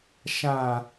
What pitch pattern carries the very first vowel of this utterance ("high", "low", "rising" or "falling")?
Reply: low